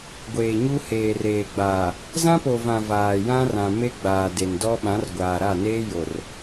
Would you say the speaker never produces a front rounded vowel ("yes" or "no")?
yes